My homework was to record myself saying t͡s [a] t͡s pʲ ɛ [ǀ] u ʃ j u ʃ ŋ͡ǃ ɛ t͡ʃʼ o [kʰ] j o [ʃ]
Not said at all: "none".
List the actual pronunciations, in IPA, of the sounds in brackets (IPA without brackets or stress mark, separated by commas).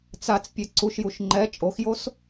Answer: a, ǀ, x, s